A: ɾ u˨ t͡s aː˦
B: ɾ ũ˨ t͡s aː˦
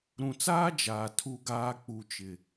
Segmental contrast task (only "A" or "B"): B